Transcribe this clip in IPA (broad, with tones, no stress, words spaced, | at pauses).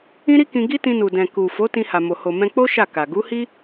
ĩ˦ɾi˦kĩ˧ ɡi˦ tĩ˧nu˨dɛ̃˨ku˨ fo˨˦ tĩ˧ha˨mo˨ ho˨mɛ̃˧k͡po˦ ʃa˦˨ka˨ ɡu˨˦hi˦